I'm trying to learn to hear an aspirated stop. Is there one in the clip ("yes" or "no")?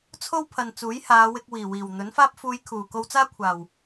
yes